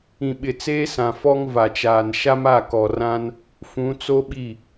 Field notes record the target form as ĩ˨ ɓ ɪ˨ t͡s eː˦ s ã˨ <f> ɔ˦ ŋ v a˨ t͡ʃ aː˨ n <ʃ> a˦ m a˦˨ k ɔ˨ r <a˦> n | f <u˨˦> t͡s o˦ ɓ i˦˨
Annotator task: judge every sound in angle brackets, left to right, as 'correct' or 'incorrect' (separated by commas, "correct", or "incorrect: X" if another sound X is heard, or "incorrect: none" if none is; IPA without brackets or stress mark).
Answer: correct, correct, incorrect: ã˦, incorrect: ũ˨˦